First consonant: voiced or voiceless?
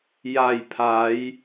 voiced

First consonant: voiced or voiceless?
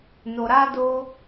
voiced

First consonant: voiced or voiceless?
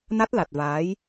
voiced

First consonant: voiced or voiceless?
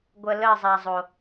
voiced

